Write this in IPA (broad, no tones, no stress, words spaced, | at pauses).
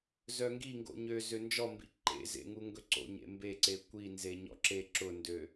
zœŋɡiŋɡo̰ ɲø zønd͡ʒɔmbḭ ǃḛ zḛŋuŋɡɵǀo̰ ɲḛmbeǀe kʷi nzeɲɔ̰ǁe ǁʊndø